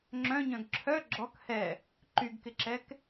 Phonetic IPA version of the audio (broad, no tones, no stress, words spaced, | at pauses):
ŋ͡ǁœ̃ɲœ̃ɡ ǁʰœ ɡ͡ǁɔk hɛ | ǃyɡkɪǁɛk